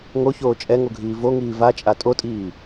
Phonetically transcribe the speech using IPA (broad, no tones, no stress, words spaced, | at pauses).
ŋoçoː t͡ʃʼɛŋoɡʱiː voŋiː vat͡ʃʼa tʼotʼiː